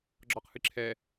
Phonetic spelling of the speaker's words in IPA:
ɡ͡ǁ ɒ q h ɨ ǁʰ ɛ

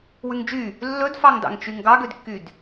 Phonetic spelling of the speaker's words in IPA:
w ʉ ŋ d͡ʒ y | lː ɵ d f ɑ ŋ d ɑ̰ ŋ t͡ʃ y ŋ ɡ ɑ ɡ ø d kː y d

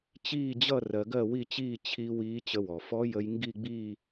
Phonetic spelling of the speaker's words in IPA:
t͡ɕ iː˥˧ d͡ʑ ʌ˥˧ r ɜ˧ ɡ ɜ˥˧ w i˥˧ t͡ɕ iː˥˧ t͡ɕʰ i˧ w iː˧˥ t͡ɕ ə˧ w ɔ˩ f ɔ˧˥ j ə˧ j ŋ ɡ i˥˧ ɡ͡b iː˥˧

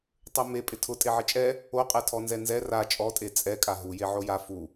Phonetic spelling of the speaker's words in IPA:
tˤ o m e pʼ ɪ tʰ ʊ tʼ e ʕ ɪ t͡ʃʼ ɛ | o qʼ ɛ tʰ ɔ n z ɛ n z ɛ r a t͡ʃʼ ɔ tʼ e t͡sʼ ɛ kʼ a ɦ u j e ʕ o j a f u

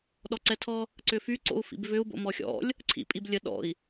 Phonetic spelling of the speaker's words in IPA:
ɗ ɔ ǀ ɛ tʰ ɔ | ǀ ʏ f y ǀ o̰ u̯ f ḭ b v ʏ u̯ b o̰ m ɔ xʲ ɔ̰ lʲ | ǀʰ ḭ pʼ i b lʲ ə ɗ ɔ̰ i̯

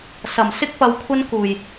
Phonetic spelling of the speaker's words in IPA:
s ɐ˨˩ m s ɪ˥ k̚ p ɐ˨˧ w kʷʰ ɐ˥ n k uː˨˩ j

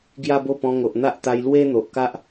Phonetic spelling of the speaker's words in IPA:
ɡ j a˦ b o˥˧ p ɔ̃˧ ŋ o˨ ʔ n̪ a˦ ʔ t̪ a˧ j l w e˦ n̪ o˨ ʔ k a˦ ʔ

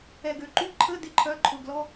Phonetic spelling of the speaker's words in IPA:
ɛ˨ ɡ ø˨ ǃ y˧˥˧ ǃʰ ə˧˥˧ d ɪ˧˥˧ ǃʰ œ˧˥˧ ǃʰ ʊ˨ ɡ l ɔ˧˥˧

